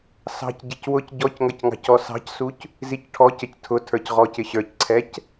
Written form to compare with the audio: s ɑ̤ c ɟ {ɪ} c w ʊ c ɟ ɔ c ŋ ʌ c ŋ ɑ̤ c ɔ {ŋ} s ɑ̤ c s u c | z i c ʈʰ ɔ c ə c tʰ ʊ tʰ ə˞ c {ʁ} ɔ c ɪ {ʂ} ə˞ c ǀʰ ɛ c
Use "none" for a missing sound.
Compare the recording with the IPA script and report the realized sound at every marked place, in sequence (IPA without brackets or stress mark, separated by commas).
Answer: ɪ, none, ʁ, ɕ